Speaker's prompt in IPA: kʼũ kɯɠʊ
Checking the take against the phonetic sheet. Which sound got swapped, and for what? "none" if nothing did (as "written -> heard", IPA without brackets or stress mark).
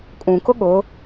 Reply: ɯ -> ʊ